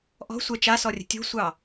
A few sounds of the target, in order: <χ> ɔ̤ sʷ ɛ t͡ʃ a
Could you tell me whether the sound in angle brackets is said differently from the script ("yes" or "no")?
yes